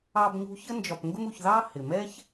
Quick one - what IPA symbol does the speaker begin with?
ɑ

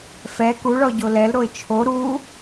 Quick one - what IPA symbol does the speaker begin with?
f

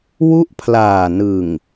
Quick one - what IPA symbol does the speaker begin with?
w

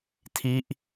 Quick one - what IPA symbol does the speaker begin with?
tʰ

